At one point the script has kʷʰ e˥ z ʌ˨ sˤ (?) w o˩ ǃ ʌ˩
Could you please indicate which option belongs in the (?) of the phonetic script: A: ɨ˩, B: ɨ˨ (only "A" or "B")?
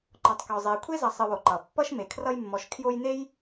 B